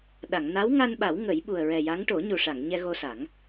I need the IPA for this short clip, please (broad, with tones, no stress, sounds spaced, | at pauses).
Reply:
ɗ a˨˩˨ ŋ n a˧˥ w ŋ a˧ n ɓ a˨˩˦ w ŋ ə˨˩˦ j ɓ u˨˩ ə̯ ɹ ɛ˨˩ j a˧˥ ŋ ʈ o˨˩˦ ɲ u˨˩ ʂ a˨˩˨ ŋ ɲ ɛ˧ ɣ o˧ s a˨˩˦ ŋ